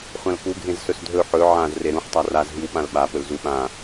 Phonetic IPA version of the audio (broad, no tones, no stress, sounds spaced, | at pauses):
χʷ ã l k u ɡʱ ẽ z s ɵ s dʱ ɵ ħ ɵ ʕ ã z r e ɾ ũ ħ tˤ a r a z ɦ i w ɓ ã l ɓ a p ɵ l z u ɓ ã